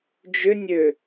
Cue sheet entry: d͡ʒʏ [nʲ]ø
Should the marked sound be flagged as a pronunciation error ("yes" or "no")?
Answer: no